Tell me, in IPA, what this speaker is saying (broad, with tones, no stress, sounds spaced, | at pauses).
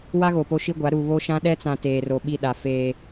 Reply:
w a˦ ɣ o˨ p o˦ ʃ i˦ ɡʷ a˨˦ ɾ u˨ β o˦ ʃ ã˦ ɗ ɛ˦ t͡s ã˨ t eː˨ r o˨ ɓ i˦˨ ɗ a˨ f eː˨